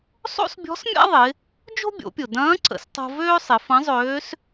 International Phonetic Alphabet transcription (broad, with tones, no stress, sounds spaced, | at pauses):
sˤ o̰˥ s bʲ ɔ̤˧˥ s mʲ a̰˥ ðˤ ɪ˩˧ | d͡ʒ o̤˥ bʲ o̰˩˧ pʲ ʊ˩ d ɐ̃ː˧˥ ǀ ə̰˩˧ s tˤ o̤˧ v øː˥ sˤ ɪ˩˧ f ɐ̃˧˥ zˤ øː˧˥ s